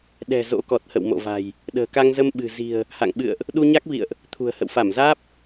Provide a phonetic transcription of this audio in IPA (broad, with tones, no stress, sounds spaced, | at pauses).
ɗ ɛ̤˨˩ z o̰˧˥ k ɔ˨˩ t̚ h ə̰˧˨ w m o̰˧˨ v a̤˨˩ j | ɗ ə̤ː˨˩ k a˧ ŋ z ə˧ m ɓ ɨ̤˨˩ z i̤˨˩ ə̯ | h a̰˧˨ ŋ ɓ ɨ̰˧˨ ə̯ ʔ | ɗ u˧ ɲ a˦˥ k̚ v ḭ˧˨ ə̯ ʔ | t̪ʰ ṳ˨˩ ə̯ h ə̰˧˨ w f a˧˩ m z aː˦˥ p̚